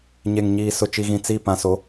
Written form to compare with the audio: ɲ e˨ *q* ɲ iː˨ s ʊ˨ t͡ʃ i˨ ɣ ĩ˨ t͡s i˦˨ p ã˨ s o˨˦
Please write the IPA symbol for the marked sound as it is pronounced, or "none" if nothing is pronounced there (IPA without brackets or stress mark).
ŋ